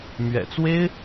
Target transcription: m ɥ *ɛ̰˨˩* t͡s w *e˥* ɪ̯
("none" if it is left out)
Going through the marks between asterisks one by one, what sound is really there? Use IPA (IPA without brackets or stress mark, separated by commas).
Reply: ɛ̰˨˩, e˥